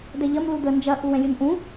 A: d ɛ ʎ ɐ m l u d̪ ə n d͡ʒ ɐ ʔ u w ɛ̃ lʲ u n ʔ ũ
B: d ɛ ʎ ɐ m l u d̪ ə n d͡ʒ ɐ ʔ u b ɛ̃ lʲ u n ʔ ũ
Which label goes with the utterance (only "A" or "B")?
A